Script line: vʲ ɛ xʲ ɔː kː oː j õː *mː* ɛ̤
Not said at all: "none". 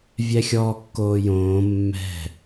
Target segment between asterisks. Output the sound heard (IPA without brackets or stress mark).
mː